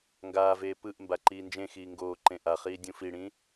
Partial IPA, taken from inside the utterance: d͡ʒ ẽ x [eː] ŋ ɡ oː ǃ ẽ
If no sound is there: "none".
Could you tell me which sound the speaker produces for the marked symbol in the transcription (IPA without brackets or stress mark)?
iː